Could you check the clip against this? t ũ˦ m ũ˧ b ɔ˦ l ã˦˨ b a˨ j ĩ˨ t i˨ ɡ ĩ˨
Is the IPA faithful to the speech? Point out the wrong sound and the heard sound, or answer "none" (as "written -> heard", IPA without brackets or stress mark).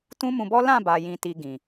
none